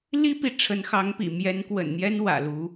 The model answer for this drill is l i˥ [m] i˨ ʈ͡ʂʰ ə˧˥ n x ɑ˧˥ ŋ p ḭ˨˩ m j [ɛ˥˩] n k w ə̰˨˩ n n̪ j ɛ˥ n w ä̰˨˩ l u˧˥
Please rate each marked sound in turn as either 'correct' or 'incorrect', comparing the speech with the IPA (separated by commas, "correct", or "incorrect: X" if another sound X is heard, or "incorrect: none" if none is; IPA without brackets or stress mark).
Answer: incorrect: p, incorrect: ɛ˧˥